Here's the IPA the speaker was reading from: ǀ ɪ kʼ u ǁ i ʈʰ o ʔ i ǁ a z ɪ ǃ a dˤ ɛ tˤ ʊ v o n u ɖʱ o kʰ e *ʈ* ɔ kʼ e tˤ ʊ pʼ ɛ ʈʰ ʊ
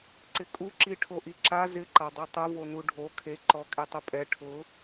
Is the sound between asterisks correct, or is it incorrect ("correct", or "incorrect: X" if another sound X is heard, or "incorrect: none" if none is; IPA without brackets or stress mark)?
incorrect: ǃ